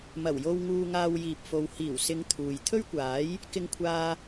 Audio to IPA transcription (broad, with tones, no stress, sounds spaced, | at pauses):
m ɐ˨˩ w j o˧ w ŋ uː˧ ŋ aː˧ w j iː˨ p̚ f o˨ w h iː˨˩ w s ɪ˨˧ ŋ t̪ʰ uː˨ j t̪ʰ ɵ˥ ɥ kʷ aː˨˥ j | k ɪ˧ ŋ kʷʰ aː˧